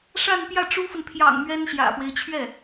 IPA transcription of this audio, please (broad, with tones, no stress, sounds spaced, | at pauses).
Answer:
ʂ a˥˧ n p j ä˥˩ ʈ͡ʂ u˥ f ə˨ n pʰ j ɑ̰˨˩ ŋ m ɥ ɛ˥ n ɕ j ä̰˨˩ f w e˦ ɪ̯ t͡ɕʰ ɥ ɛ˥˩